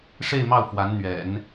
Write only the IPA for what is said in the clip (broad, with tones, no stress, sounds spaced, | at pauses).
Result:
ʂ e˥˧ ɪ̯ m ɑ˥˩ ʊ̯ f w a˧˥ n n̪ ɥ ɛ̰˨˩˦ n